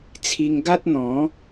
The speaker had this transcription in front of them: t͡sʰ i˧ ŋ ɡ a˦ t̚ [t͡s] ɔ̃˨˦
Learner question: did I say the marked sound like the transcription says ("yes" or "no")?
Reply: no